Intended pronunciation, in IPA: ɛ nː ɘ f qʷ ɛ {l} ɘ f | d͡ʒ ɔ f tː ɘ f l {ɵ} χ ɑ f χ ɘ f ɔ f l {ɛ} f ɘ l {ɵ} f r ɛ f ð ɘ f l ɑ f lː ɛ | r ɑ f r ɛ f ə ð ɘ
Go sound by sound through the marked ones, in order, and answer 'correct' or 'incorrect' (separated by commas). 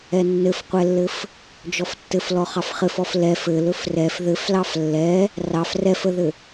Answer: incorrect, incorrect, correct, correct